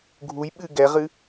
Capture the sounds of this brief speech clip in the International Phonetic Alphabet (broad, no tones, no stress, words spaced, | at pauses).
ɡʱuj ɓɨ ɡɛʁɨ